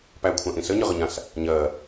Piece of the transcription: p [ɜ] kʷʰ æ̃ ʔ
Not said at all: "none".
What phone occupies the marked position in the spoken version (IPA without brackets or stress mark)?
æ